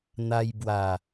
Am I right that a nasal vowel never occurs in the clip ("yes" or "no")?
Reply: yes